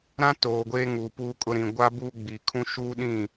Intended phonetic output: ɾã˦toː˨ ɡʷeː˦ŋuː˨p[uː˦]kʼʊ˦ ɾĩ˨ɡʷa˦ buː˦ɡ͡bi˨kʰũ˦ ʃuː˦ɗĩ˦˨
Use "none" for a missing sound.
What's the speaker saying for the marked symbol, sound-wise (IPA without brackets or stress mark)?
uː˦